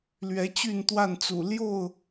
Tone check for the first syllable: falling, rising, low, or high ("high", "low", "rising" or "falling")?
rising